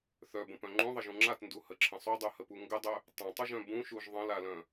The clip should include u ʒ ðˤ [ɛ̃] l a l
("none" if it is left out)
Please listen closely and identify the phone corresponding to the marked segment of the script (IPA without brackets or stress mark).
ə̃